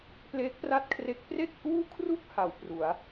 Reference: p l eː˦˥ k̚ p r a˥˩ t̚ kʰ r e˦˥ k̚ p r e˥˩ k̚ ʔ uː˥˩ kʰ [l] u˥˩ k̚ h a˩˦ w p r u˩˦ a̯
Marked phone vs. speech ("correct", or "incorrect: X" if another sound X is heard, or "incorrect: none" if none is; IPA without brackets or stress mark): incorrect: r